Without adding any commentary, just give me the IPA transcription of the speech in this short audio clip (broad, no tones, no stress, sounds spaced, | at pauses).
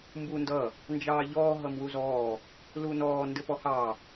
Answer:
m b uː n d ʌ | n d͡ʒ ɑː ʎ ɔː ɦ ʌ m w u z ɔː | l u n ɔː n d ɘ p ɔ h ɑ